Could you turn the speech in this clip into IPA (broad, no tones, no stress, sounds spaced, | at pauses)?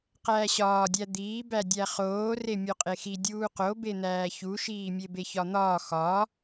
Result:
q æː ɕ ɒː dʲ æ d̪ iː b æ dʲ æ χ oː r e mʲ o qʼ e x i dʲ uː q o b e n̪ æː ç u ʃ iː mʲ e b e ç ɒ n̪ ɒː x ɒ